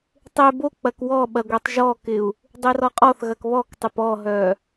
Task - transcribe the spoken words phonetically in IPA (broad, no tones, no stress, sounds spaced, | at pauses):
tˤ e b o k͡p ɐ k w ɔ ɓ ɐ ɡʷ ɛ tˤ ʒ ɔ k ɪ u̯ | dˤ e r ɔ qʼ ɔ θ ɣ ɐ k β ɔ k tˤ ɪ p ɔ ɦ œ